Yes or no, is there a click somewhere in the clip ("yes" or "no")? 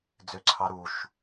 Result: yes